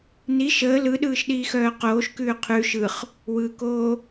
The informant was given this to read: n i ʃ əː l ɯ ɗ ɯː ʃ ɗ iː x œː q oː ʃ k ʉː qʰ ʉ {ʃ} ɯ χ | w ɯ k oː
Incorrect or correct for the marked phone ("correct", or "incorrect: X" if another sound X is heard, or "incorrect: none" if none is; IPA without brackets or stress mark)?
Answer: correct